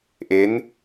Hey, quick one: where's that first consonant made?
throat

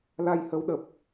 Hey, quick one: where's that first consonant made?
tongue tip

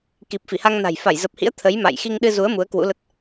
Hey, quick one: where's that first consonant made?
velum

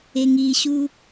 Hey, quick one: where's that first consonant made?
velum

